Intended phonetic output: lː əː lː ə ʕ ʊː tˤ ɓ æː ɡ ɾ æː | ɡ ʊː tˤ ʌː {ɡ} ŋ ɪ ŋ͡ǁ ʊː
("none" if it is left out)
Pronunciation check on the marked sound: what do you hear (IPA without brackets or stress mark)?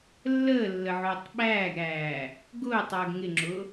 ɡ